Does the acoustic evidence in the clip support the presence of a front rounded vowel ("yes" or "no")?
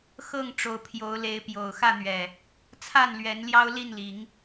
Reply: no